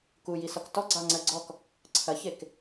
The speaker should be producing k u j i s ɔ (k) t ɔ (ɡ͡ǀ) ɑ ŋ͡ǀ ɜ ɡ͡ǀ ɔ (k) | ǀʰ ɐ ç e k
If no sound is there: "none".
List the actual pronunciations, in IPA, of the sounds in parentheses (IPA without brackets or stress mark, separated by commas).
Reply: k, ɡ͡ǀ, k